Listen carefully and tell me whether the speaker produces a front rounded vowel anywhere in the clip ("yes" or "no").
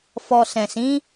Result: no